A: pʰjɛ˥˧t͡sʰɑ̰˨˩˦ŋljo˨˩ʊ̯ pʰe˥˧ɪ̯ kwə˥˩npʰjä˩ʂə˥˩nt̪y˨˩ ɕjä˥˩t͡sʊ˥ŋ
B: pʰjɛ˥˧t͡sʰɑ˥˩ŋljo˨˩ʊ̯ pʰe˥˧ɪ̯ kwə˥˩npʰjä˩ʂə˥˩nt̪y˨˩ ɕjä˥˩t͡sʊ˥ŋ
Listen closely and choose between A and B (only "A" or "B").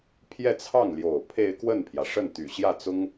B